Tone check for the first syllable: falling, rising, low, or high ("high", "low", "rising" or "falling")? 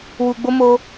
low